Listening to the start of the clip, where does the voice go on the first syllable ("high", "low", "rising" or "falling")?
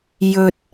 low